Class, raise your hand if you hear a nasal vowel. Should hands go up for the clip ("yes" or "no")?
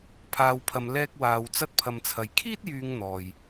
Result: no